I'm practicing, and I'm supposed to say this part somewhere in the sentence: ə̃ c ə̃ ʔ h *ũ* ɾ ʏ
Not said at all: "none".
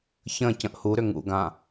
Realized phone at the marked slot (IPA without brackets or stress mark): u